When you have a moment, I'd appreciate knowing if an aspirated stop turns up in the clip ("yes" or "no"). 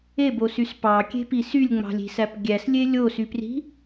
no